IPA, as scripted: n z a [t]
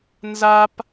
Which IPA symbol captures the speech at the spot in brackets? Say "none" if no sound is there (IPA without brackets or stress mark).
p